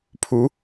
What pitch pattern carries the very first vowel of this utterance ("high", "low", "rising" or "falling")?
rising